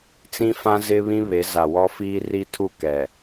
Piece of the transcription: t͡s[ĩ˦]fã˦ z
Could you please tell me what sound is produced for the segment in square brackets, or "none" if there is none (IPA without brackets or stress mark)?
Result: ĩ˦